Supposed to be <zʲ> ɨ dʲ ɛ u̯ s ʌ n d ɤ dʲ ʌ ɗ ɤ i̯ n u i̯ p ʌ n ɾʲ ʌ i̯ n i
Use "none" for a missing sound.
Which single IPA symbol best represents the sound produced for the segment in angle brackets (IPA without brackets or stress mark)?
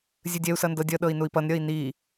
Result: zʲ